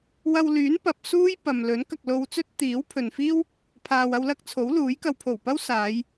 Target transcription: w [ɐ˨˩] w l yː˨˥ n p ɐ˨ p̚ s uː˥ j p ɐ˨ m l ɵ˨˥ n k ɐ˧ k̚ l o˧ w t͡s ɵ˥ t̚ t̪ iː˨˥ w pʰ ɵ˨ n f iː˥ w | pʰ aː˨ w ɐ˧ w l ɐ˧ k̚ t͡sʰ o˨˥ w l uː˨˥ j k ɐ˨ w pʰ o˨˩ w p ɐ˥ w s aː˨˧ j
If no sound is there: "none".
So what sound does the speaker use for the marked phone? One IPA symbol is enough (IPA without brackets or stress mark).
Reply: ɐ˧